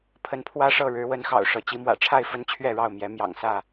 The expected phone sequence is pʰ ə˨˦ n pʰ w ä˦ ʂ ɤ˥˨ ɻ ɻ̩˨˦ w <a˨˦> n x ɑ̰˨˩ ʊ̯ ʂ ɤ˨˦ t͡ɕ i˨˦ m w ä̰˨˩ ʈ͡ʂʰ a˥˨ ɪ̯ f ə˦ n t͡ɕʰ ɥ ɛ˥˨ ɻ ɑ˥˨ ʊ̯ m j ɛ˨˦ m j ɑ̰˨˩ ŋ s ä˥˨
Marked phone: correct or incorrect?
incorrect